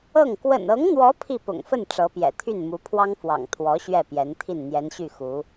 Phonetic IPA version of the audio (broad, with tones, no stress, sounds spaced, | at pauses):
ɤ˥˩ ŋ k w ə̰˨˩ n ɤ˧˥ ŋ n̪ w ɔ˧˥ pʰ i˥˩ p ʊ̰˨˩ ŋ f ə˥˩ n ʈ͡ʂ ɤ˧˥ p j ɛ̰˨˩ t̪ʰ y˥˩ n m u˧˥ pʰ w ɑ˥ ŋ f w ɑ̰˨˩ ŋ t̪ʰ w ɔ˧˥ ɕ ɥ ɛ˥˩ p j ɛ˧˥ n t̪ʰ i˥˩ n n̪ j ɛ˧˥ n ɕ y˥˩ x u˧˥